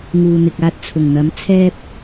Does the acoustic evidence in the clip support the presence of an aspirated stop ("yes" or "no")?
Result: yes